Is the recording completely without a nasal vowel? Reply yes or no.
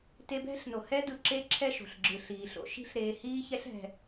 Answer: yes